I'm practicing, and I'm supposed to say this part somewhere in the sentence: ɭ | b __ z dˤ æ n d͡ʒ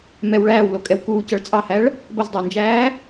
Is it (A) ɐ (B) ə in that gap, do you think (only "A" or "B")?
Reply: A